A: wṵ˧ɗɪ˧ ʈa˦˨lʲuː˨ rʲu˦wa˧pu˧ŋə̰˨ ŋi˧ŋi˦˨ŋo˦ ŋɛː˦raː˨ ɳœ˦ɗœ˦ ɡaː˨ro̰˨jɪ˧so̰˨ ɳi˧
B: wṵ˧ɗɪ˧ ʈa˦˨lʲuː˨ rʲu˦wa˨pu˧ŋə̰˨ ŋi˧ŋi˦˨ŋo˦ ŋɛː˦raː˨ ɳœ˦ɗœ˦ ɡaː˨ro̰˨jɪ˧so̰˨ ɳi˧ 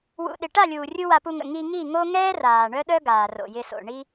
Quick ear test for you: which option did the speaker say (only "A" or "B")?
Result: A